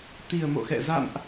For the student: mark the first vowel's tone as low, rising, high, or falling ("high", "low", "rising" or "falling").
low